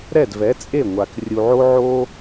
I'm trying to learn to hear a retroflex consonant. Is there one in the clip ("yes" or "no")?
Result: no